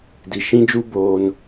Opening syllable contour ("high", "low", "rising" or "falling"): low